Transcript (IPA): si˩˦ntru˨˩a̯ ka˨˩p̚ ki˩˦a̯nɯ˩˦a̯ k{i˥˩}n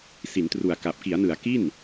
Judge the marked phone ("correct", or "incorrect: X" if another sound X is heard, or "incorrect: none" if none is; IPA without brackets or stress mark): correct